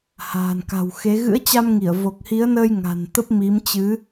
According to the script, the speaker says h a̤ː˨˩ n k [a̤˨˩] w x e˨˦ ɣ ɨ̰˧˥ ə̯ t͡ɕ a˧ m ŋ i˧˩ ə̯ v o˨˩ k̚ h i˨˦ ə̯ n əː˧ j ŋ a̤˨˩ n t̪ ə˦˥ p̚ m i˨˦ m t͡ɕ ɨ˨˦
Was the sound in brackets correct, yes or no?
yes